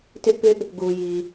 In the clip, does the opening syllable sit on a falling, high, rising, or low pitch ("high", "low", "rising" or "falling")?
high